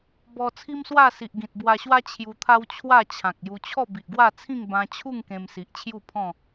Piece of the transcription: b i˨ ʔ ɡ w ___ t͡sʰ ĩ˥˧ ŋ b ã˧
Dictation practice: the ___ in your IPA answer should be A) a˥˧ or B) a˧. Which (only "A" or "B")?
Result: A